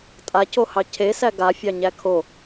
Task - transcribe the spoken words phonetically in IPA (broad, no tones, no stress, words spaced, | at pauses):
tʼacohɑ cʰesæ ɡafʲɑɲæ kʰo